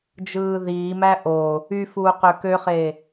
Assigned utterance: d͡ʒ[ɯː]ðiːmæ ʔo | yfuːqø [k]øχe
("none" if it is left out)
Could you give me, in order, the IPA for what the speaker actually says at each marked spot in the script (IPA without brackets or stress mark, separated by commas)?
ɯː, k